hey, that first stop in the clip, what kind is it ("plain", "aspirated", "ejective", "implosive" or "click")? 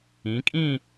ejective